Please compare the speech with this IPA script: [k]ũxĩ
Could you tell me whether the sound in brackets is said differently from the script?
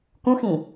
no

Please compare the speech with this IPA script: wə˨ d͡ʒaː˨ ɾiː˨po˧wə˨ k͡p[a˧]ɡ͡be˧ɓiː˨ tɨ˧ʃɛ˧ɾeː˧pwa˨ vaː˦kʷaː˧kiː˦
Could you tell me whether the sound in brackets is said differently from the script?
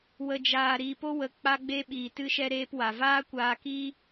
no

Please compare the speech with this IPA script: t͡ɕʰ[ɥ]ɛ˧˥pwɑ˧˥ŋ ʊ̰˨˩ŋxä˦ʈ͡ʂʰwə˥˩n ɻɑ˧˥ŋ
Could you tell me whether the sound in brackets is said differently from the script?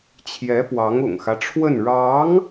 yes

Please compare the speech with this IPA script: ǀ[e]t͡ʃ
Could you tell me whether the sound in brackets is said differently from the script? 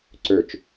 yes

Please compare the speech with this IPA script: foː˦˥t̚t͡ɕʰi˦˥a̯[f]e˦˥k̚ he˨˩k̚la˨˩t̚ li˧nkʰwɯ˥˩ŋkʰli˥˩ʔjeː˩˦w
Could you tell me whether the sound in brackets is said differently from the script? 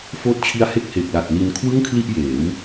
yes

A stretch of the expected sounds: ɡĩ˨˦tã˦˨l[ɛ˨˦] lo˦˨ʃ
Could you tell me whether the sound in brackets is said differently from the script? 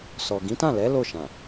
no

